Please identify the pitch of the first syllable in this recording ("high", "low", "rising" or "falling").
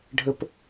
high